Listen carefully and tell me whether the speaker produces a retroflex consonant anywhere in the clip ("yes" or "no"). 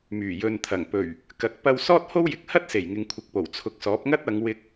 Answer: no